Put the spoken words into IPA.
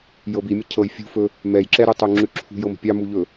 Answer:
j ɤ b i mʲ ə cʰ ɤ j fʲ ṳ f ɵ | m ɛ j ǁ ɛ ɾ u tˤ u ŋ͡ǁ ʉ ǁʰ ṳ j ɤ m ə̤ pʲ ɑ m u ʎ ɵ

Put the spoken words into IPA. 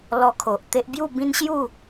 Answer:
l ɔ˧ kʰ o˨ ʔ t̪ e˦ ʔ b j u˥˧ b ĩ˦ n ɕ j u˥˧

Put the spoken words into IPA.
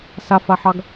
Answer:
s a f a ħ ɑ ɡ

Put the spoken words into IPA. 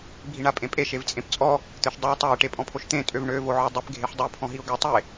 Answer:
bʱ i ɳ a pʼ ẽ pʼ e ʃ e v t͡sʼ ẽ p t͡sʼ ɔ | t̪ ø ʃ dˤ e ʊ̯ tˤ a ɪ̯ ʈ e pʼ ɔ̃ pʰ o ʃ t̪ ẽ tʼ ø v ɳ ø v o ʕ ɔ dˤ e p ɡʱ e ħ dˤ ø pʰ ɔ̃ ɦ i ʊ̯ ɡ ø tˤ e

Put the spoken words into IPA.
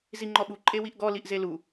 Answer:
z i ŋ͡ǃ ɔ ɓ u ǃʼ e w i ʔ ɡ ɔ l i ʔ z e l u

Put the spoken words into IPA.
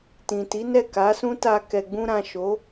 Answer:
t ĩ˨ t i˨˦ n ɛ˦˨ k a˨˦ s ũ˦ t a˧ k ɛ˨ ɡ͡b ũ˧ ɾ ã˨ ʃ o˨˦

